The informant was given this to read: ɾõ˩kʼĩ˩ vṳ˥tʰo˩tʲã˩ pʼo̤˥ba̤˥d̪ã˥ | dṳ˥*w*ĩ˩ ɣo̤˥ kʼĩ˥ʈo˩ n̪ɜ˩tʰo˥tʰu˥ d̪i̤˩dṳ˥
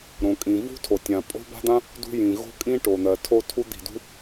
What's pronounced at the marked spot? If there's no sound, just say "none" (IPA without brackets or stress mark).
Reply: j